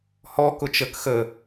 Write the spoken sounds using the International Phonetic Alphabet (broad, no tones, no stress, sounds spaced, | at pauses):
h ɔ k ʊ t͡ʃ ə k x ə